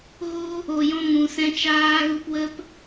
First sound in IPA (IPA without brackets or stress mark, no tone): ɣ